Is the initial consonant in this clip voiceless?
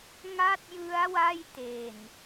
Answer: no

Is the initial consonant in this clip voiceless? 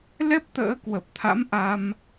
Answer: no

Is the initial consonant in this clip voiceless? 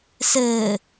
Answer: yes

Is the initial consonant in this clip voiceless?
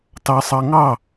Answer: yes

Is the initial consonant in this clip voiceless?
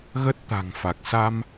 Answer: no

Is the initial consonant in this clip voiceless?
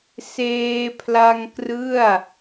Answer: yes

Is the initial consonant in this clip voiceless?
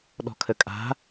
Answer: no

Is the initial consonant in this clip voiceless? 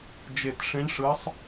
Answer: no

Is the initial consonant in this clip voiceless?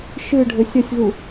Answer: yes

